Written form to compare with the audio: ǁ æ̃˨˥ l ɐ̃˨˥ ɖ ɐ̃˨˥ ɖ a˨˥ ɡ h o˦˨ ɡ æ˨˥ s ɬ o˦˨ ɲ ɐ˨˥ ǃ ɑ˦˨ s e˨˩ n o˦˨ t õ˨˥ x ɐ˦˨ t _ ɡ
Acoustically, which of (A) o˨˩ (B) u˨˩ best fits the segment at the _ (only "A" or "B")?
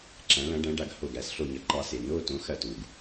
B